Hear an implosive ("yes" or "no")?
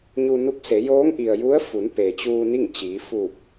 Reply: no